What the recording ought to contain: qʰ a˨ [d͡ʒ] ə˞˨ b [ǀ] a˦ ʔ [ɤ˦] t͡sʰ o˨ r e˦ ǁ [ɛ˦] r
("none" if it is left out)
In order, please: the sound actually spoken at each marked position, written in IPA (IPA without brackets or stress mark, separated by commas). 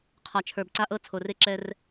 t͡ʃʰ, ǀ, ɤ˦, ɛ˦